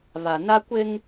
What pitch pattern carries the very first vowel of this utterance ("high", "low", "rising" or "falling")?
low